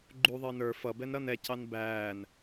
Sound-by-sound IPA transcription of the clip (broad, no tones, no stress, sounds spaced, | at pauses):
ɡ͡ǃ u ðˤ əː n ə˞ f ʌ b ɛ n ɾ ʌ n ɛ c ɑ n b æː n